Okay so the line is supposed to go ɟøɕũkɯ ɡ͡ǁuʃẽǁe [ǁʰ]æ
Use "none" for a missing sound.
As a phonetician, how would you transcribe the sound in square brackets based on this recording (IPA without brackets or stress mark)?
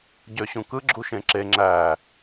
ŋ͡ǁ